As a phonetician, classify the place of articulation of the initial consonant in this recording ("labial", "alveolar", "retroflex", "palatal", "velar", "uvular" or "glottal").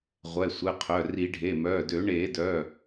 uvular